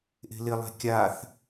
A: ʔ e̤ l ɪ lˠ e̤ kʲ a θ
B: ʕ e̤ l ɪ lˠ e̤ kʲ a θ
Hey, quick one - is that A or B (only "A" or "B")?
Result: A